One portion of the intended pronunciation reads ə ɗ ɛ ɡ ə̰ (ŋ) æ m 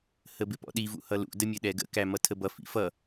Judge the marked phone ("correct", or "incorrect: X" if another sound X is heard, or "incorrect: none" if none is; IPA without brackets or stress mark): incorrect: k